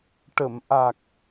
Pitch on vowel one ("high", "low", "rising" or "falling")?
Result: low